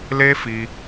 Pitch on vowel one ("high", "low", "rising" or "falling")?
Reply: high